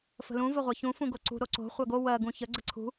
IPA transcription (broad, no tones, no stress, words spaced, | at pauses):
fə̤lũ vəʁʷɜçũ fũɡoǀṳ ɾoǀo̤ χʷɜɡo wɜ ɡũçə ɡ͡ǀəǀʰṳ